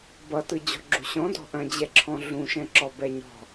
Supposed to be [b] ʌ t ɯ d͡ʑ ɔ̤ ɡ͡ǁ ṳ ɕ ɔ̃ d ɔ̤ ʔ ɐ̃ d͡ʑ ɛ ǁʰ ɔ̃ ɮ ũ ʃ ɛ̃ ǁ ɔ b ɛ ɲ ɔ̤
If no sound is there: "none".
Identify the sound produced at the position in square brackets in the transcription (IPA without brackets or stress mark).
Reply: b